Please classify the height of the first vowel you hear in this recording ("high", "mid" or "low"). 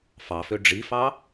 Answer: low